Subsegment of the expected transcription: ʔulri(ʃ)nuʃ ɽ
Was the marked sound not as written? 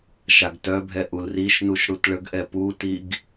no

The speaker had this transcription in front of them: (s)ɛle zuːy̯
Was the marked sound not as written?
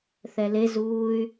yes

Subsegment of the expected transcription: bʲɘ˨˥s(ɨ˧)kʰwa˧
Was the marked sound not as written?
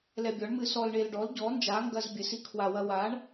yes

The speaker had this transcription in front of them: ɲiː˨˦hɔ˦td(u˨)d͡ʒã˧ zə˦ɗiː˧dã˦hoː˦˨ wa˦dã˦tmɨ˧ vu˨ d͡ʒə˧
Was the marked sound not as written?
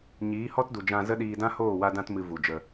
no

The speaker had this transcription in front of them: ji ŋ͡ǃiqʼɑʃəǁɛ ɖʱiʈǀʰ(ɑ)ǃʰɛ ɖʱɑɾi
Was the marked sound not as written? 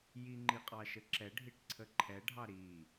yes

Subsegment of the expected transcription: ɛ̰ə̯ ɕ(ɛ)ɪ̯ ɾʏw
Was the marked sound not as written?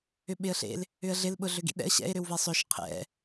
yes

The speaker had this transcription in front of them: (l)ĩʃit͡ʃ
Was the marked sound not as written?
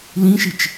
no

